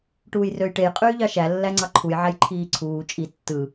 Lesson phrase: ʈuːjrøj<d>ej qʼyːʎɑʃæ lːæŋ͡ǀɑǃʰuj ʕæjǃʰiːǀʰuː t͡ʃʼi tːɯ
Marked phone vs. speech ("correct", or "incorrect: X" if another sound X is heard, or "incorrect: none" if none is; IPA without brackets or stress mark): incorrect: ʈ